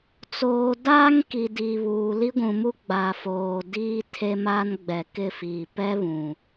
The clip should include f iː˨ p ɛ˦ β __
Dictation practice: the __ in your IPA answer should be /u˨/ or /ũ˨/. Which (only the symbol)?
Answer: ũ˨